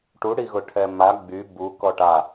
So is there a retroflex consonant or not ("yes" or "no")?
yes